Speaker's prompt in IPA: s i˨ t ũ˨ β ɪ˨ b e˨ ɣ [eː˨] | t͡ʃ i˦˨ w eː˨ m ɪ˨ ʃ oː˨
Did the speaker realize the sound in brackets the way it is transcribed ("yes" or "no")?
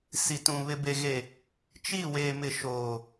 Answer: no